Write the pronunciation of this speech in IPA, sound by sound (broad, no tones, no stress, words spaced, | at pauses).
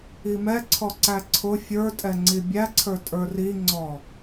imɛǀʰɔ ǀæǀʰʊ fʲə˞tʼɛ ŋ͡ǀibʲæǀʰə˞ tʼə˞riŋ͡ǀɔ